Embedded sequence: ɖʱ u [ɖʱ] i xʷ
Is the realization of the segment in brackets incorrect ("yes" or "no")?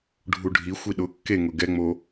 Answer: no